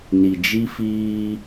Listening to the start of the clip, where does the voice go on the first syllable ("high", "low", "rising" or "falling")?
low